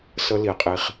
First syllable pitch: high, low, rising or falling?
high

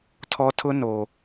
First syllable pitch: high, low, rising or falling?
high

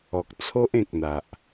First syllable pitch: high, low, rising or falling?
low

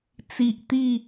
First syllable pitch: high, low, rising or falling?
low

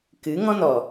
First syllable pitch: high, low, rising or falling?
rising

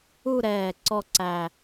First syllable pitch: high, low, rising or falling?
falling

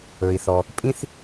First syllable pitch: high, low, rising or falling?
low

